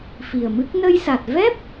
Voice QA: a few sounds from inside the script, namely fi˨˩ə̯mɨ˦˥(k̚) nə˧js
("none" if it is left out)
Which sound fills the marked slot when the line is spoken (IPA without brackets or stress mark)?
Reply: k̚